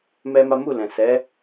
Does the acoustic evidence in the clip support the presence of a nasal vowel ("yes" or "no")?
yes